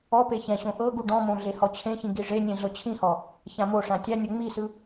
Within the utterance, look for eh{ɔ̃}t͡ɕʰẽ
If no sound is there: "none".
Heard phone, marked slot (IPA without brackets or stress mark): ɔ